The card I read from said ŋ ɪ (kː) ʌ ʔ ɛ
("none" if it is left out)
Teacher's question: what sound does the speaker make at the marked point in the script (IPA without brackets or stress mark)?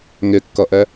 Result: kː